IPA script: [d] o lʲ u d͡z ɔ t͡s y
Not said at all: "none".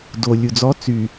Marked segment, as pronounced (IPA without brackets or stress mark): d